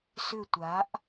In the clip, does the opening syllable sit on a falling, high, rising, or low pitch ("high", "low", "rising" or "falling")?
falling